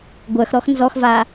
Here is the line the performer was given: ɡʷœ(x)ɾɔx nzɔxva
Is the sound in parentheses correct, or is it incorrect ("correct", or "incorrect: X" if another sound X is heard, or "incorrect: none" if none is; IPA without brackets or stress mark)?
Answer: correct